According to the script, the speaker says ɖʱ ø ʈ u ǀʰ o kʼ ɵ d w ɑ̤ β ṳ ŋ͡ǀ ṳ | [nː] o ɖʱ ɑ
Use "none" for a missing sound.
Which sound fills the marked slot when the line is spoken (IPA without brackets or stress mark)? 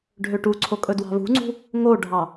ŋ